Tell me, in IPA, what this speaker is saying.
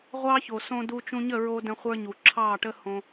ʁʷ ɑ˦ ç o˨ s õ˦ d u˦ t͡ʃ ũ˧ ɲ ə˦˨ ɹ o˧ d ə̃˧ χʷ ə˞˧ ɲ u˨ ǁʰ ɑ˦˨ ʈ ə˦ h õ˧

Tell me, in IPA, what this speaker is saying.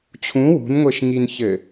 t͡ɕʰ ũ w ṳ n ŋʷ e ʃ ŋ i n ç ɘ

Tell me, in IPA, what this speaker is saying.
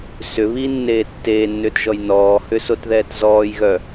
s ʏ β i nː eː tː eː nː ʏː t ʒ ɔ j n ɔː h ʏ s o t ð ɛː t z ɔː j ɣ œ

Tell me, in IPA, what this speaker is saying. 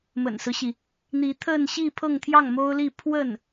m ə̰˨˩ n s ɹ̩˦ ɕ i˩ | n̪ i˧˥ t̪ʰ ə˥˧ n ɕ i˥˧ pʰ ɤ˥˧ ŋ t̪ʰ j ɑ˥˩ ŋ m o˥ ʊ̯ l i˥˧ pʰ w ə˥˩ n

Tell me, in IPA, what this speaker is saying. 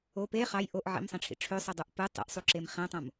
o p e χ ɑ j ʔ o ʔ ʕ ḭ m sˤ ẽ ʈ͡ʂʰ ḭ ʈ͡ʂʰ ø sˤ ɯ dˤ u ʔ p ɯ tˤ ḭ ʔ sˤ u ǁ e m χ ẽ tˤ õ m

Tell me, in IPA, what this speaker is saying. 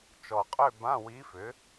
t͡ʃ ɔ˨˩ qʼ ø˥˧ b ã˧˥˧ w i˧˥ f ʏ˩˥

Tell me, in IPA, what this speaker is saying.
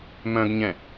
m œ̃ ɡ ɲ ɛ̃

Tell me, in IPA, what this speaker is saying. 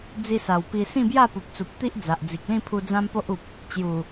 d͡z i˧ s a˨˩ w p i˧ s ĩ˥˧ b j a˥˧ p u˨ p̚ t͡s u˨ p̚ t̪ i˦ ʔ d͡z a˨ ʔ d͡z i˨ k̚ l ĩ˥˧ pʰ u˧ d͡z ã˦ m p o˦ ʔ u˨ p̚ | t͡ɕ j u˨˩

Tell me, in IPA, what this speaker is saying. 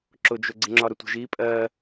ǁ ʊ d͡ʒ ʊ ɡ͡ǀ ɪ ŋ͡ǁ ɒ ɾ ʊ tʷ ə̤ ʒ i pʼ ɜ

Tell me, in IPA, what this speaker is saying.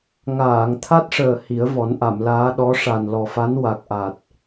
ŋ aː˨˩˨ ŋ t̪ʰ a˦˥ t̚ ʂ əː˨˩ h i˨˩˦ ə̯ v ɔ˨˩˦ n ʔ a˨˩˨ m l aː˧˥ ɗ ɔ˧˥ ʂ a˨˩ n l ɔ˨˩ f a˧˥ n w a˨˩ k̚ ʔ a˨˩ t̚

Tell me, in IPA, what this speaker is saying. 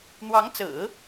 n̪ w ɑ˧˥ ŋ t͡s ɹ̩˨˩˦

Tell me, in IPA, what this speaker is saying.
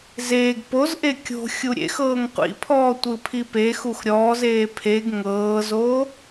z eː ɡ p o z ʔ e kʲ o̤ xʲ u ɾʲ ḛ x ɤː ŋ qʷ ḭ pʰ ɔː tʷ ɯ pʰ i p e x u x ɾʲ ɔː z eː pʰ e ɡ ŋ ɤː z o

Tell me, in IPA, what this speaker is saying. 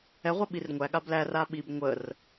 ɛ ʁʷ ɛ ɓ i r ŋʷ æ ɠ a b l æ r a ɓ i b ŋʷ ə r

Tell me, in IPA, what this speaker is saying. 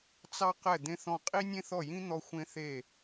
t͡s ɑ˥ q ɛ˥˩ d̪ ẽ˥ θ ɔ̃˥˩ qʼ i˥ nʲ ẽ˥ θ ɔ˥˩ j ĩ˥ n̪ ɔ˥ xʷ ẽ˥ θ e˥˩

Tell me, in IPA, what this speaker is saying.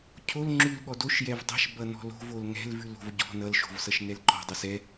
cʰ o l ŋ͡ǁ ʉ l ɠ ɔ d o ʃ j ɛ v dˤ ɛ̤ ʃ b ʌ n ɔ̤ l o̤ v o l ŋ ɛ̤ l v ʉ l o̤ v ɟ ɔ̤ n ʌ l ʃ o̤ v s ʌ ʃ n ɛ l ǃ ɔ̤ dˤ ʌ s ɛ

